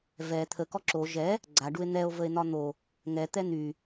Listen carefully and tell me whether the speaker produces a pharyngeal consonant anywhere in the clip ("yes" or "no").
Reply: no